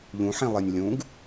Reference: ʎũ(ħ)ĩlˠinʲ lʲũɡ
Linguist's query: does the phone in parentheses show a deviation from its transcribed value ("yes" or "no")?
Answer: no